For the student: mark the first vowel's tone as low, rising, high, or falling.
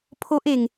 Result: high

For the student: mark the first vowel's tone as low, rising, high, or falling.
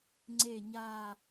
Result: low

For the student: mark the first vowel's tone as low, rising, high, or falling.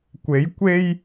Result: rising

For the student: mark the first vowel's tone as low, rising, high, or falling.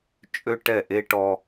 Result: high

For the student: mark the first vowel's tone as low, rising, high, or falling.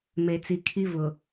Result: low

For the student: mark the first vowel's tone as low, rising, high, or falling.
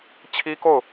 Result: high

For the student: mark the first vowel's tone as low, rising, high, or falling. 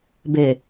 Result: low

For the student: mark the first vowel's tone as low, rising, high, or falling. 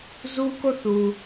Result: high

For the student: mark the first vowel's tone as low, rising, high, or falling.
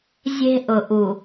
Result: high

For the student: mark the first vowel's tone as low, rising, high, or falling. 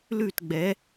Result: falling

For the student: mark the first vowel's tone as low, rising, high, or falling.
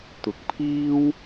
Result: rising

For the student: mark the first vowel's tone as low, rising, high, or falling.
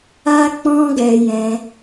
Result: high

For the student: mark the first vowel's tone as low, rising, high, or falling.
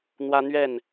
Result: high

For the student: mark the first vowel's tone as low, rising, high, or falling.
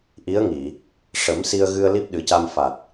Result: rising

